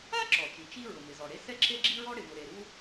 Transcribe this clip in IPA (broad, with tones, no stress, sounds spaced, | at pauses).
a˥ ǁ ɔ˩ t͡ʃ i˩ t͡ʃ i˥ ɹ ʊ˩ m ɪ˩ z ɔ˩ ɽ e˥ s ɛ˥ ǁ e˥ ɡ͡ǁ i˥ ɹ ɔ˥ ɽ ɪ˩ v ʊ˩ ɾ e˩ ɾ u˥